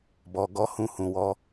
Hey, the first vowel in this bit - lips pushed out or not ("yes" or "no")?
yes